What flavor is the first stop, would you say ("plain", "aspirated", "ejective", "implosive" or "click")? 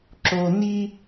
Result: click